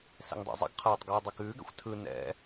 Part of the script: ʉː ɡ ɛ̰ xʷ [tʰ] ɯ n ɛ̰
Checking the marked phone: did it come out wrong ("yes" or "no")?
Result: no